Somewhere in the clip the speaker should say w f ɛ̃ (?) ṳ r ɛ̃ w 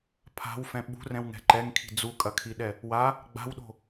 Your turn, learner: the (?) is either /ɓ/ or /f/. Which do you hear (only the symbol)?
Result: ɓ